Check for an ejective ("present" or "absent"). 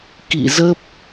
absent